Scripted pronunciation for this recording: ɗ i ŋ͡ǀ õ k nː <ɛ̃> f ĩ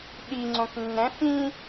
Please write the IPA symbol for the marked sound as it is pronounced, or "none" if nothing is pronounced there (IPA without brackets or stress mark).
ɛ̃